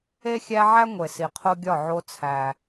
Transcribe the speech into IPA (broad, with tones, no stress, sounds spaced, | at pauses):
e˦ xʲ æ˦ ʕ æ˦ ŋʷ e˨ s i˨ qʰ o˦ ɡʲ ɒ˦˨ ʕ o˦ t͡sʰ æ˦